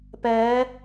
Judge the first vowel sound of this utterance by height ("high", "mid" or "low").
mid